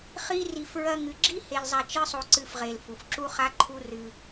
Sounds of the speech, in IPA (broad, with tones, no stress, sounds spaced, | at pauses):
χ i˦ r i˧ f ɹ ɐ˧ ŋ ɨ˨ ɡ͡ǁ i˦ h e˧ l zˤ a˧ t͡ʃ ɨ˦ sˤ o˧ ǀ ɨ˧ f ʁ e˨ l f u˨ f ǁ u˦ χ a˦ ǃʰ u˦ r ɨ˧